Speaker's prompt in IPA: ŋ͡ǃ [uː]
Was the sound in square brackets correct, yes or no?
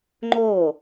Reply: no